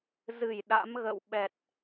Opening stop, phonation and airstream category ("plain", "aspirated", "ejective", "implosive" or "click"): implosive